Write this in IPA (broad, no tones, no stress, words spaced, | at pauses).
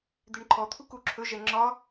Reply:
d̪eɳǃʰɔ t̪ʰukuǁʰɵ ʒɛŋ͡ǁɒ